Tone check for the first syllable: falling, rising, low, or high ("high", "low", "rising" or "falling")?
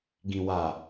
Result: low